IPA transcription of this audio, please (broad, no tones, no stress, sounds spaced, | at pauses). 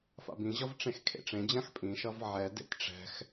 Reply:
f a̰ b ĩ ʑ ʌ v ʈ͡ʂ ẽ x kʰ ḛ ʈ͡ʂ ẽ d͡ʑ ã x pʼ ĩ ʃ ʌ v ʕ ɛ d ḛ t ʈ͡ʂ ɛ̤ x